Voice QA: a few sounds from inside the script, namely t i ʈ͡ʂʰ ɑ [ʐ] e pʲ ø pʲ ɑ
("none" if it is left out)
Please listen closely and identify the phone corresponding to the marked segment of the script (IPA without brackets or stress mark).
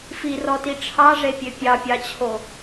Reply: ʐ